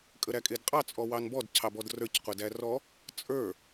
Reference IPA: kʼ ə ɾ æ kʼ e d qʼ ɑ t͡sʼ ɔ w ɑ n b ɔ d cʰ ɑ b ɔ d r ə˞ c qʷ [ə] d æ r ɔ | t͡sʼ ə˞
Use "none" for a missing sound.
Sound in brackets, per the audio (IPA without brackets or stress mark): ə